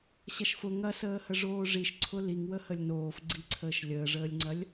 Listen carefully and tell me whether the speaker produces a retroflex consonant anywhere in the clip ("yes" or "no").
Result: yes